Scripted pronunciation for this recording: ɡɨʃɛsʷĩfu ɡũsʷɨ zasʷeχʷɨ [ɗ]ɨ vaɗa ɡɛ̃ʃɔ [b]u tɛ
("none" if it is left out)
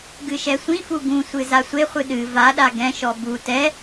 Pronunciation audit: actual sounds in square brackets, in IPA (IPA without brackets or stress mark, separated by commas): ɗ, b